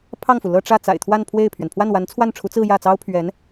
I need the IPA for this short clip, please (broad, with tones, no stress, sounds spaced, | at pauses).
pʰ ɑ˥˩ ŋ f u˩ l ɤ˥˧ ʈ͡ʂ ä˥˩ t͡s a̰˨˩ ɪ̯ t̪ʰ w a˥˧ n pʰ w e˥˩ ɪ̯ pʰ ɥ ɛ˩ n pʰ w a˥˩ n w a˧˥ n t͡sʰ w a˥˩ n ʈ͡ʂʰ u˧˥ t͡s ɹ̩˥˧ j ä˥˩ t͡s ɑ˥ ʊ̯ pʰ ɥ ɛ˧˥ n